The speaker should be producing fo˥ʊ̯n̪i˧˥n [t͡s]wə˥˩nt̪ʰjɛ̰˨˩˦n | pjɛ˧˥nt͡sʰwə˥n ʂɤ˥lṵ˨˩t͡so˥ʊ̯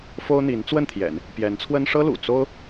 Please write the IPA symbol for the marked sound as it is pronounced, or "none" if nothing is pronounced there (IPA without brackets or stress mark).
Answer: t͡s